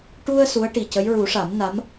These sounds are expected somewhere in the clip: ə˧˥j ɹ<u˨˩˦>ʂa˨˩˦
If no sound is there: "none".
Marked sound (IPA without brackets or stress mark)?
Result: u˨˩˦